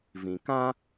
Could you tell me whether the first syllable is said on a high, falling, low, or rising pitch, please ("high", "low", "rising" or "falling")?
low